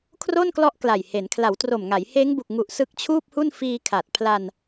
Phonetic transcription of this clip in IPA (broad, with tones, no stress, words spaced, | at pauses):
kʰro˥˩nklɔ˦˥ʔ kla˨˩jhe˩˦n kʰla˩˦w tro˨˩mŋa˩˦jheː˦˥ŋ bu˨˩k̚ŋu˨˩ʔ sɯ˦˥k̚t͡ɕʰuː˥˩p̚hu˥˩n fiː˧kʰa˨˩t̚pʰla˧n